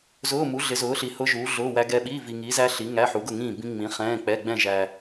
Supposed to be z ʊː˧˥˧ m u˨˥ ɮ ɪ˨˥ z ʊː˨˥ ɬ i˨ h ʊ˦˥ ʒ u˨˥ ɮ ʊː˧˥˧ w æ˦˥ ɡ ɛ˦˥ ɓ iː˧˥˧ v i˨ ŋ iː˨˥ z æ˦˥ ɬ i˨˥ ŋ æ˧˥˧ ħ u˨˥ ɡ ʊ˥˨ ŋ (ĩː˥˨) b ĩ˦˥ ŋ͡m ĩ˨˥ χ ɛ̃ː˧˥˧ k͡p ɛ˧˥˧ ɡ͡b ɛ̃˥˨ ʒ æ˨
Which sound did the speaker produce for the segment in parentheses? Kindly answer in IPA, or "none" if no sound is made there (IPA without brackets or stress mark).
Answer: ĩː˥˨